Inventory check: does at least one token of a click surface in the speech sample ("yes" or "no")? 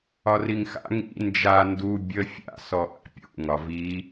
no